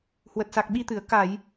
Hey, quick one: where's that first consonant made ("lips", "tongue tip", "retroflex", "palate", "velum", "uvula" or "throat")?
throat